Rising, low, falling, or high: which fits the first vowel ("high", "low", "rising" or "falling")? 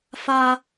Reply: high